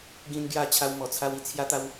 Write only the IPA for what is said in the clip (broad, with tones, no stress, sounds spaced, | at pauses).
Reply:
ɡ ĩ˦ n ɡ j a˥˧ t͡ɕʰ a˦ w m ɔ˧ t͡sʰ a˦ w i˦ t͡sʰ j a˦ t̪ a˦ w